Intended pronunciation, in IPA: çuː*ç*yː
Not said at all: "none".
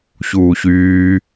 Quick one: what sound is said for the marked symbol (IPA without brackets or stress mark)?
ç